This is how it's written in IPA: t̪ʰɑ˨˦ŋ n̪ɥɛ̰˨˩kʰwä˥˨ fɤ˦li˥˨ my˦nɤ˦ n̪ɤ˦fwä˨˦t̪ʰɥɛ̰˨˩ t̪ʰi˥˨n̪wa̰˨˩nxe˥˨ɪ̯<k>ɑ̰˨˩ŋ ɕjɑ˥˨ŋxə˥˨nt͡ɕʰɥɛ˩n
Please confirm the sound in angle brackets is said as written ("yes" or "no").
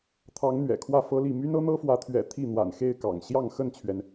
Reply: yes